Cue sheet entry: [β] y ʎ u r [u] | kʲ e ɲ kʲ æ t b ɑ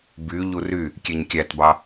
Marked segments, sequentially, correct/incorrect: incorrect: b, incorrect: y

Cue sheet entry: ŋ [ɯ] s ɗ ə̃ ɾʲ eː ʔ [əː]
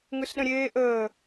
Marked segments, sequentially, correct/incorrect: correct, correct

